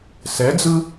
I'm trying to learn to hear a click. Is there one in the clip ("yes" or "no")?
no